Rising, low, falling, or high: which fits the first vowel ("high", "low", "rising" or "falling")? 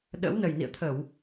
rising